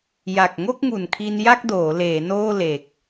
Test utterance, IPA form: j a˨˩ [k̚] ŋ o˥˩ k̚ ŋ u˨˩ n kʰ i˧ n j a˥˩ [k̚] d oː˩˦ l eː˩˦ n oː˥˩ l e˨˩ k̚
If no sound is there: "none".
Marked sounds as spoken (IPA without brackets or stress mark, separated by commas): k̚, k̚